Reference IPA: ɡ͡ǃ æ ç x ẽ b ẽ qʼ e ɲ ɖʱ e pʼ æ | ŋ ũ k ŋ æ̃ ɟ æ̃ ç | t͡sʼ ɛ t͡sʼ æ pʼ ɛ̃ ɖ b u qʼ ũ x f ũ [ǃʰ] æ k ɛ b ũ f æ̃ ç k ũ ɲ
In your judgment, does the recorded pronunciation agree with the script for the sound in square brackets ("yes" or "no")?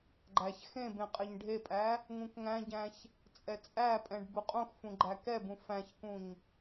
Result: no